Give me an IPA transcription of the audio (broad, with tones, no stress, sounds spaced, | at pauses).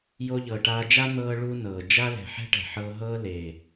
j o˧ ʎ ɤ˨ ʈ aː˧ d͡ʒ a˦ n̪ ɤː˧ ɭ u˦ n ɤː˨ d͡ʒ a˦ l ɛ̤˨ ħ ɛ̤˦ ʈ ɛ̤˨ ħ ɤː˧ ɦ ɤː˦ l eː˨